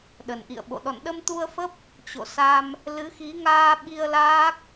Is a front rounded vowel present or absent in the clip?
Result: absent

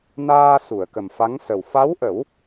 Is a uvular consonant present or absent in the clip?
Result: absent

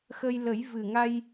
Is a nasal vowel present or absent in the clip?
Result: absent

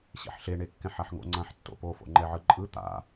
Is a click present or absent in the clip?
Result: present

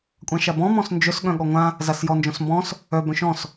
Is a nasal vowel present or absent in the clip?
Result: present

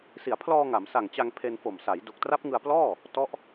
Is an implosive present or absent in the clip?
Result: absent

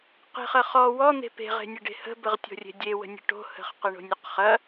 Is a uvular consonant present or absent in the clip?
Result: present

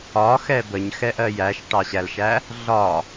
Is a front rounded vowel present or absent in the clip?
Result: absent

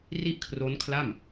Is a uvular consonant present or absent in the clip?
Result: absent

